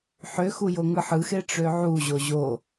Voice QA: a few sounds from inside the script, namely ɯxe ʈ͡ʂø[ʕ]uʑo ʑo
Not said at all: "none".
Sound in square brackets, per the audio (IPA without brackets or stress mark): ʕ